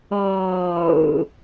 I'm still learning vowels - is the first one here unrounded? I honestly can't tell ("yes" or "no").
no